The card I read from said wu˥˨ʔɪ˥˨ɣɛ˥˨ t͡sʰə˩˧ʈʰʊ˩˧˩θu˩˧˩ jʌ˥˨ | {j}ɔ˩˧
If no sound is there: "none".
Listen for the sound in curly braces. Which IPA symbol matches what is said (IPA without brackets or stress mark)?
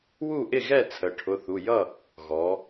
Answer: ɣ